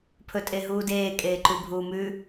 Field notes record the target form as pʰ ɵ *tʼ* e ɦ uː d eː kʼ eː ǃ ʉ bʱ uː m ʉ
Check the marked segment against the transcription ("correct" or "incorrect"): correct